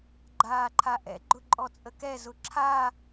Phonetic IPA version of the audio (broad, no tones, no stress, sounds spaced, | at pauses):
ɡ͡ǃ aː ǃʰ a ʔ ɛ̰ ɡ͡ǃ ʊ ǃʼ ɔ t͡sʼ ə k ɛ z ʊ ǁʰ a